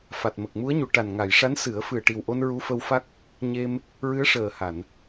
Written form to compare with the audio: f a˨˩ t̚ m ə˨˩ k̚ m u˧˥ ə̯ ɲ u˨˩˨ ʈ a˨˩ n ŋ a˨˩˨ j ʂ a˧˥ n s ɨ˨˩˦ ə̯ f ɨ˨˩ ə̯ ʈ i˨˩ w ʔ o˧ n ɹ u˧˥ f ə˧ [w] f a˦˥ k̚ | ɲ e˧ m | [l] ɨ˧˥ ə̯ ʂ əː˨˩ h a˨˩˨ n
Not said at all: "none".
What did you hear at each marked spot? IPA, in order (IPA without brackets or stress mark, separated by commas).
w, ɹ